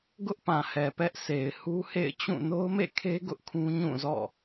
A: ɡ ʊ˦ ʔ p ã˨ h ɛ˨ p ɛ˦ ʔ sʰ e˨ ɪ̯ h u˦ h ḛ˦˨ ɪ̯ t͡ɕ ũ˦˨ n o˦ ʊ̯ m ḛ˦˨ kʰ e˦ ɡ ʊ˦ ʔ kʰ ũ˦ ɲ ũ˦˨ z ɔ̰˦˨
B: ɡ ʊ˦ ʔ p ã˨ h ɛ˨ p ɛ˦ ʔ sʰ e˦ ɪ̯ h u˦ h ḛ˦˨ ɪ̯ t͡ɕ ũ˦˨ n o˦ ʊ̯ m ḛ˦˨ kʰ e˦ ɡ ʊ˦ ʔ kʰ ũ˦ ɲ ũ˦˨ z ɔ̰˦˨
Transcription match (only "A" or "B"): A